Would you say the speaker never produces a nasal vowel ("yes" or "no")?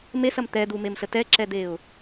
yes